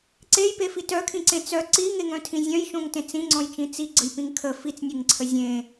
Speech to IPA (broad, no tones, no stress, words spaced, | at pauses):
ǀejpefi tœkʰĩǀẽ t͡sœ ǀiŋeŋœ̃tʰĩ zʲœ̃jʃõŋtẽ t͡sĩŋ͡ǀɔ̃jt͡ʃĩ t͡siɡ͡ǀəjpĩŋ kʰə fit͡snʲeŋǀʰə zʲẽ